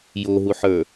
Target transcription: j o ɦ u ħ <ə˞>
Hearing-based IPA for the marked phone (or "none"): ə˞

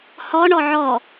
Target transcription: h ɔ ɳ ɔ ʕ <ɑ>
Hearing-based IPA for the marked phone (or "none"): ɔ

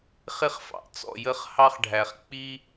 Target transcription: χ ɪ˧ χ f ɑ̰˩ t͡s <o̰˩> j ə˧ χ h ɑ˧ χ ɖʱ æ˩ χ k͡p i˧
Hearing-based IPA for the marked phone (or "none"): ɔ̰˩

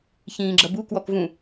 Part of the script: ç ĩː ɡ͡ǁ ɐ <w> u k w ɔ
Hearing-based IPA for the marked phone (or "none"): b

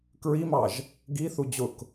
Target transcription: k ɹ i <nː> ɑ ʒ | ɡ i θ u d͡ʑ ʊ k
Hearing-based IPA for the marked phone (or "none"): m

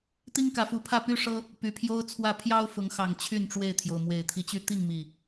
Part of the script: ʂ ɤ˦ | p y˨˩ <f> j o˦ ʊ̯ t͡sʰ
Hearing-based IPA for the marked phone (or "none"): pʰ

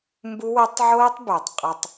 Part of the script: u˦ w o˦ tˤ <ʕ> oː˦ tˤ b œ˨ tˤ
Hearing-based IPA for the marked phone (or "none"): ʕ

